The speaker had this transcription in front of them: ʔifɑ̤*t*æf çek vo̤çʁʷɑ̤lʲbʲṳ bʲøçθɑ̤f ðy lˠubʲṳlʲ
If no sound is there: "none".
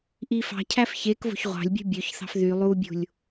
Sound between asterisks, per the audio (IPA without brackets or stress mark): cʰ